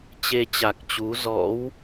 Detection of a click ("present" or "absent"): absent